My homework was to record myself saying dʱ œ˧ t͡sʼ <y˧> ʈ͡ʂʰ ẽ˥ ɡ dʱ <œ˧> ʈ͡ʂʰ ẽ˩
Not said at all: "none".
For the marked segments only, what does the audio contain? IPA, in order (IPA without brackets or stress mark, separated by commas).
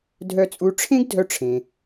u˧, œ˧